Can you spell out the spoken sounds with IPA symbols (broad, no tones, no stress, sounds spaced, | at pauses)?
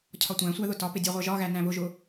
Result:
cʰ ɒ tʷ æ̃ sʷ æ ð ʊ t ɒ p ɪ dʲ ɑ ʁʷ ɜ ʒ ɒ ɣ æ n æ̃ β ʊ ʒ ʊ